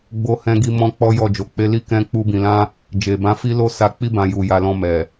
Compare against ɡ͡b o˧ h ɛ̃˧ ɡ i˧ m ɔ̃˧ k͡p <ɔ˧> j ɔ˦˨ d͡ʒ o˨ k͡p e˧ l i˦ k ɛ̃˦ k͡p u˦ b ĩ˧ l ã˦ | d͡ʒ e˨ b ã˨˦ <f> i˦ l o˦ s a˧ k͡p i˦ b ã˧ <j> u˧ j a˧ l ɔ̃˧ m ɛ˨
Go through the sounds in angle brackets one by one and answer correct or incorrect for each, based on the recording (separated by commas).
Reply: incorrect, correct, correct